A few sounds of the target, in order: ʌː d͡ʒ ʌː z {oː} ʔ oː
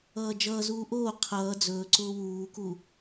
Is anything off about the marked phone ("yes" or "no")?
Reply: yes